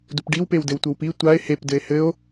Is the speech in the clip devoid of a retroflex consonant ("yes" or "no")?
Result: no